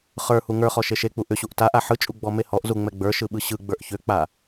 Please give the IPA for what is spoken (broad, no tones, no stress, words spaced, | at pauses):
χə˞ huŋə˞χɔ ʃeʃek͡pu ʔʏɕuʔ taʔa ħɯt͡ʃʼu ɡ͡bɔmehɔʔzu ŋ͡mɛɡ͡bə˞ʃɯ ɓɯɕɯɡ͡bə˞ʔ çʏk͡pa